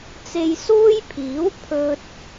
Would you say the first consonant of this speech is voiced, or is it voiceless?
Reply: voiceless